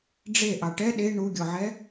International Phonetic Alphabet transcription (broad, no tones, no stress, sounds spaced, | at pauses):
ɖ͡ʐ e ʔ ɑ ʈ ɛ ɗ e ɳ u ɡʲ ɔ ʕ ɛ